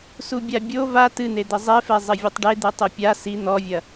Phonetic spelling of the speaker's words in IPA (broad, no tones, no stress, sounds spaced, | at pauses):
s u bʲ a bʲ o v a t ɨ n̪ e d̪ ɘ zˤ e f ɛ zˤ ɘ vʲ ɨ tˤ ɖ e d̪ ɨ tˤ u pʲ a s i n̪ ɔ vʲ ɐ